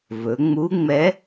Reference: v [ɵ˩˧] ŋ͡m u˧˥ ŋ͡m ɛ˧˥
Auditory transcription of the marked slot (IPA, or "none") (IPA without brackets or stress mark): ɵ˩˧